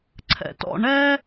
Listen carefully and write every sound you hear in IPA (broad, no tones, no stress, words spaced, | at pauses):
ǀʰɛ̰tɔ̰ ɳɛ